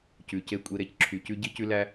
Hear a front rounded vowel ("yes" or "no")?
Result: yes